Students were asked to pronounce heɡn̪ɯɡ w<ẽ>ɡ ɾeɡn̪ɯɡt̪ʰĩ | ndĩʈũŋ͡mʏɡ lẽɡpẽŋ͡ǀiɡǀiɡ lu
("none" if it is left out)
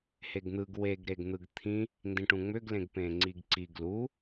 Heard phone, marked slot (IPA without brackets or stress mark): e